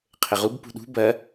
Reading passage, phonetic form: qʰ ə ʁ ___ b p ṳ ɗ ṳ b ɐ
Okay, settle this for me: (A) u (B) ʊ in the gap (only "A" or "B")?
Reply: A